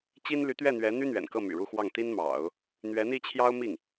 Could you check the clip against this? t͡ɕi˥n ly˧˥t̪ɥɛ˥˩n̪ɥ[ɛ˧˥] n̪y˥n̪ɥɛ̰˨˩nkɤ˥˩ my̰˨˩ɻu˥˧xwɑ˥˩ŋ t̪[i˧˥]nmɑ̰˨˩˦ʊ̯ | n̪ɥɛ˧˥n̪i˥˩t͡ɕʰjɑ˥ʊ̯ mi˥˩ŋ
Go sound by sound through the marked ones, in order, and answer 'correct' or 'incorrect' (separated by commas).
correct, incorrect